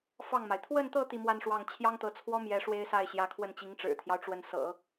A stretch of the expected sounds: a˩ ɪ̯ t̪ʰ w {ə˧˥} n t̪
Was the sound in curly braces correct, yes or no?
no